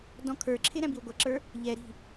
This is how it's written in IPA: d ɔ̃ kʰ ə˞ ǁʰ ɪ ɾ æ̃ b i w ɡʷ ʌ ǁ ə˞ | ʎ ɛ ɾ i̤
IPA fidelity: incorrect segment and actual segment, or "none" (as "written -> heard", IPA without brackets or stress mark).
none